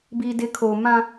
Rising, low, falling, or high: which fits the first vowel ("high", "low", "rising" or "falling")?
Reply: low